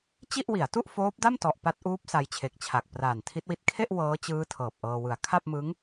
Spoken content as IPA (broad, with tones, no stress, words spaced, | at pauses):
t͡ɕi˥˩ʔwi˩˦a̯ tu˥˩ʔfoː˦˥p̚da˥˩mtɔ˨˩ʔ pa˦˥t̚ʔuː˦˥p̚ sa˧jt͡ɕʰe˨˩k̚t͡ɕʰa˨˩k̚ praː˨˩ntʰi˦˥t̚wi˦˥t̚ kʰe˥˩ʔ wɤː˦˥t͡ɕɯː˦˥ tʰɤː˨˩p̚ʔɤː˧wɯ˨˩a̯ kʰa˥˩p̚mɯ˦˥ŋ